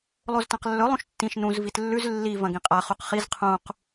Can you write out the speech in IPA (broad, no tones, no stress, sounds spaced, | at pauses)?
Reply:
lˠ o z t ã q lː ɵ lˠ ũ ʃ tː ĩ ʃ n ũ z v i t lː ʉ z lː i v ɐ̃ ɡ ĩ qʼ a χ u q χ i z qʰ ũ q